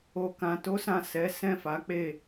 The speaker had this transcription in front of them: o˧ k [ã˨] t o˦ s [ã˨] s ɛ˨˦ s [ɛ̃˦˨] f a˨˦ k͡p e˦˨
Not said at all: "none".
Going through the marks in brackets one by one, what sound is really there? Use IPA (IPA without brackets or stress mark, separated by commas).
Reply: ã˧, ã˦˨, ɛ̃˦˨